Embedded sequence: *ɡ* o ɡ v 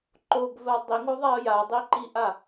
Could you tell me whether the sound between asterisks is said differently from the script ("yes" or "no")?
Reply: yes